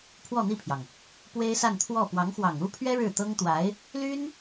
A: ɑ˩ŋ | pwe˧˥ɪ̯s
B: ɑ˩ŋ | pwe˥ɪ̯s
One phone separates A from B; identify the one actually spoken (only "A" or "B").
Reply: B